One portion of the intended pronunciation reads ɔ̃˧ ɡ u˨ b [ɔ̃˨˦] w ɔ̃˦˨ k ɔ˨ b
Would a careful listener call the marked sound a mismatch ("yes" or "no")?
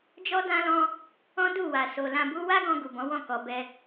no